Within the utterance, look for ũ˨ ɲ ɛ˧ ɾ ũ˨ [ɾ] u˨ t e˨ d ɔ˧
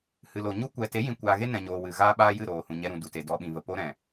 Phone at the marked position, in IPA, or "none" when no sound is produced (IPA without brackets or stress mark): d